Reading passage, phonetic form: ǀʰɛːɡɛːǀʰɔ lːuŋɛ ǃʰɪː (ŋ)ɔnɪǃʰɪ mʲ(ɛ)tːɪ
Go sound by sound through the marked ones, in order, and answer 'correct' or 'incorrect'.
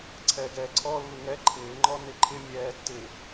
incorrect, incorrect

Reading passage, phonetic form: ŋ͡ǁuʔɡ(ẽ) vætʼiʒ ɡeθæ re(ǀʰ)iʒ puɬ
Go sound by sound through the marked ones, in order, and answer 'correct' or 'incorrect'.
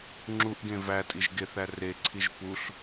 correct, correct

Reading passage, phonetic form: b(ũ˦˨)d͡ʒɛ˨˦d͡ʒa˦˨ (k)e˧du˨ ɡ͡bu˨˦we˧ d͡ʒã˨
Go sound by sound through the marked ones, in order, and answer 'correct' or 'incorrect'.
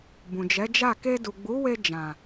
incorrect, correct

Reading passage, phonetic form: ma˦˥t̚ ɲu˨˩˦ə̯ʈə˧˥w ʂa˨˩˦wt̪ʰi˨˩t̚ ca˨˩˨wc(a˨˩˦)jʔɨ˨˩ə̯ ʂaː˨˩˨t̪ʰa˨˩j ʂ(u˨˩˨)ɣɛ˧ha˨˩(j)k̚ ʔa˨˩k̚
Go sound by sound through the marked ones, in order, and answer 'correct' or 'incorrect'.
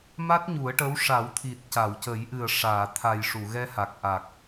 incorrect, correct, incorrect

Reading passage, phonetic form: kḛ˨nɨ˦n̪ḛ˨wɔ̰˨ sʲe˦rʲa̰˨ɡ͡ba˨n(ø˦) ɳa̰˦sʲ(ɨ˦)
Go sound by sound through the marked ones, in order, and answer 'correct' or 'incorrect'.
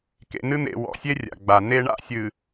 incorrect, incorrect

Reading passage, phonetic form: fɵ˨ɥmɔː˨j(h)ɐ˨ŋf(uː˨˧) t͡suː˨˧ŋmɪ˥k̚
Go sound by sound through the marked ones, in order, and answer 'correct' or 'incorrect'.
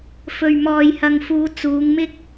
correct, correct

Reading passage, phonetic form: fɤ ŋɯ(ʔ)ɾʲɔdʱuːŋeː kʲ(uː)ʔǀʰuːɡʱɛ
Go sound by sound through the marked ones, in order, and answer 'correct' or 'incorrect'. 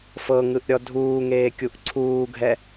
correct, incorrect

